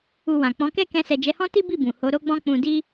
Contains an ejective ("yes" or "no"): no